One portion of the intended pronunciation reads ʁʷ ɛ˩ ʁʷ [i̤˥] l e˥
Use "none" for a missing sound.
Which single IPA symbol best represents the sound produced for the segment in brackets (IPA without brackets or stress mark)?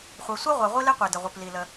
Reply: i˥